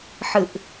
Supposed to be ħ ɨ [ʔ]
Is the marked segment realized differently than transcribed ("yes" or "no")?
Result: no